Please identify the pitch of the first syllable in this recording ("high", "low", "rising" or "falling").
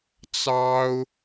high